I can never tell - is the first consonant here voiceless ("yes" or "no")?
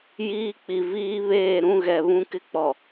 no